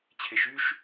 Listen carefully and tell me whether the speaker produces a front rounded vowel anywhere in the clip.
yes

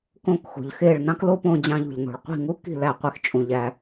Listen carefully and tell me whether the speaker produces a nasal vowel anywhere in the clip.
yes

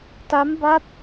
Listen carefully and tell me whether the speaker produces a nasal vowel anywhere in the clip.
no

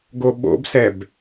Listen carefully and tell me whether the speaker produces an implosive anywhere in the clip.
yes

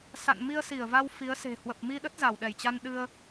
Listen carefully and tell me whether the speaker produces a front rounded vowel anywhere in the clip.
no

